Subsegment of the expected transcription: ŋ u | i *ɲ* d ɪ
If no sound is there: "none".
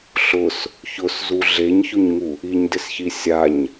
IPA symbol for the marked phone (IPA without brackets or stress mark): ɲ